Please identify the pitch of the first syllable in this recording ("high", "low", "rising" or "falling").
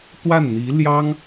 falling